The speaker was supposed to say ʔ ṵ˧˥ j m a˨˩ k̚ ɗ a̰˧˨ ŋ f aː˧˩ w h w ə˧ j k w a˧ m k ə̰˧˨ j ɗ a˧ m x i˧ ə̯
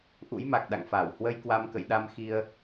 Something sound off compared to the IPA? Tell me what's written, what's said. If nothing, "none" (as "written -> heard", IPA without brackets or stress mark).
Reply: none